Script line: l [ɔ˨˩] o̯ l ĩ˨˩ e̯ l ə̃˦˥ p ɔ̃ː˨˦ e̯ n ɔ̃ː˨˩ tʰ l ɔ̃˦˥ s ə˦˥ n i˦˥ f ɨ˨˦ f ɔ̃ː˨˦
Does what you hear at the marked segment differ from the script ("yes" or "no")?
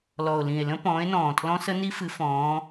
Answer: no